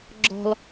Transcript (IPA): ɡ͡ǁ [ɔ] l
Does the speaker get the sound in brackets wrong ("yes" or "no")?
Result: yes